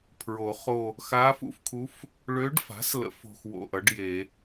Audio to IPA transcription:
pʰɹo˨˩˦χo˦˨ | xa˧˥fṵ˧˥fkʰu˧˥f | ɭø˧˥ɖfa̤˩˥slə̰˨˩˦f o̤˦˨xwo̰˦˨ʔʌ˩˥ɖje˨˩˦

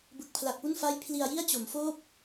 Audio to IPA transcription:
bɯ˨˩k̚pʰla˨˩k̚pu˥˩n fa˥˩j pʰli˧a̯ji˥˩a̯t͡ɕo˩˦mfoː˥˩p̚

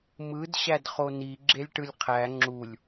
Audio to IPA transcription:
mɯd ɕædχoni ɡ͡ǁelʲʈɯlʲqʰæ ŋ͡ǁulʲ

